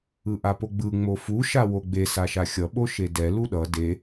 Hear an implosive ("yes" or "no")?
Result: yes